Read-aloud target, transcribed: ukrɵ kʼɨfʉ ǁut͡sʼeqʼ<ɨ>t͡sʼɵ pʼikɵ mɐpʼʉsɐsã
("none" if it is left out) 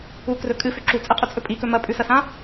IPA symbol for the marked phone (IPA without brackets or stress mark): ʉ